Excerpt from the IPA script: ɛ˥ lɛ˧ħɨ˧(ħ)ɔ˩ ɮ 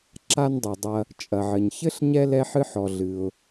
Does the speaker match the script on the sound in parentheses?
yes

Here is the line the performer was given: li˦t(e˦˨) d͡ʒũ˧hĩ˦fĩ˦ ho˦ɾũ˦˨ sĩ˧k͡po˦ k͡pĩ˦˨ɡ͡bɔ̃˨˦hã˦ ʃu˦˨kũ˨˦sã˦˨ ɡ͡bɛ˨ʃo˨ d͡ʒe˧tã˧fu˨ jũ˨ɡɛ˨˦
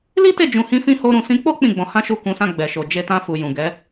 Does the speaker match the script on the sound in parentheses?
yes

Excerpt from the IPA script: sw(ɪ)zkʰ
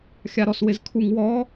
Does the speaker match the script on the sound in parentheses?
yes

